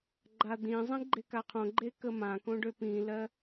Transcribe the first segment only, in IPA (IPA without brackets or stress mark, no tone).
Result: ɡ͡ǃ